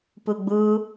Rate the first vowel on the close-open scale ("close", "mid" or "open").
close